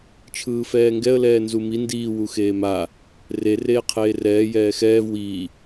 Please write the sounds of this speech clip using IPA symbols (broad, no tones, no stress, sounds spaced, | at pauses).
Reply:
t͡ʃʰ ɯː f ɛː ŋ ɡ ɛ ə̯ l ɛː n z u m i n d iː w u x eː m a | r e r eː qʰ eː r ɛː j ɛː x ɛː v w iː